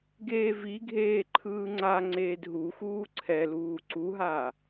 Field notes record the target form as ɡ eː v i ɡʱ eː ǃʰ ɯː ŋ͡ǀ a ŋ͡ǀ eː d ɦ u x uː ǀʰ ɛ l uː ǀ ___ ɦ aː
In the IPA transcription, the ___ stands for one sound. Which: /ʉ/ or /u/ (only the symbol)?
u